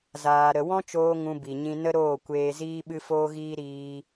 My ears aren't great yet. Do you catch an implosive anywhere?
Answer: yes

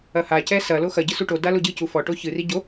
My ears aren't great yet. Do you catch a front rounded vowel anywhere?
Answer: no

